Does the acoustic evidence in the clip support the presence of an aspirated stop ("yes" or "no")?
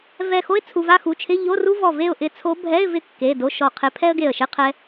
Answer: yes